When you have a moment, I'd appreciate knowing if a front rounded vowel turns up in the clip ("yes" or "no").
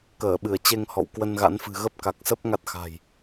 no